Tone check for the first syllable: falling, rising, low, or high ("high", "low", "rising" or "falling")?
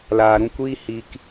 low